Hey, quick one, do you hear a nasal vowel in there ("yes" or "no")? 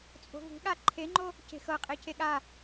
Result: no